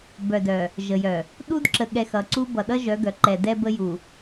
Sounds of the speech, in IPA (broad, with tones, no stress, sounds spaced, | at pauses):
b œ˨ d œ˨ | ʒ ə˨ j œ˨ | ɗ u˦ d ǁ ə˨ ɠ ɛ˨ x ʌ˨ ǀ u˦ b ʌ˨ ɗ ʌ˦ ʒ œ˨˦ ɡ œ˨ ǃ ɛ˨ d ɛ˦ b ə˦ j u˨